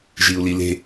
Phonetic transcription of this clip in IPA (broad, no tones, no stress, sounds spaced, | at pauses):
ʒ i u̯ l i l e̤